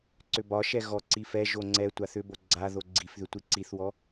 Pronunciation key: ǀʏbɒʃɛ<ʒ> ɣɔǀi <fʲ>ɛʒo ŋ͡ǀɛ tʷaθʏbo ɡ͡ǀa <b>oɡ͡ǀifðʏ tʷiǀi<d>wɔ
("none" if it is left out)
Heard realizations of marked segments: none, f, ð, θ

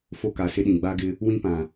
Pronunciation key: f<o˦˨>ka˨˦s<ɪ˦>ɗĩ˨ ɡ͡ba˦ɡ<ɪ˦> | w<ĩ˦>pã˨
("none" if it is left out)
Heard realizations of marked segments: o˦˨, ɪ˦, ɪ˦, ĩ˦

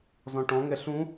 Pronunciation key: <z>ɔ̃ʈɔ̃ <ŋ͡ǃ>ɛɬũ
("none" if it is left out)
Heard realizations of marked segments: z, ŋ

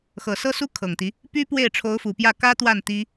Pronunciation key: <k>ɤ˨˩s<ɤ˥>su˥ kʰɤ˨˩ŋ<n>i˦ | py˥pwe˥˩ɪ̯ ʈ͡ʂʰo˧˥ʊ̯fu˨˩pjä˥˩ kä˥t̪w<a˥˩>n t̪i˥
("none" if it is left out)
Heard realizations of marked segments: x, ɤ˥, t̪, a˥˩

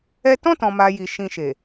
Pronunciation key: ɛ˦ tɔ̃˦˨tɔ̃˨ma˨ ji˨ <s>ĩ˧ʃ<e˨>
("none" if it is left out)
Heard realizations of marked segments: ʃ, e˨

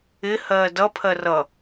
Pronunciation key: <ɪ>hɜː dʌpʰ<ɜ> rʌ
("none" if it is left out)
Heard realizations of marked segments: ɪ, ɜ

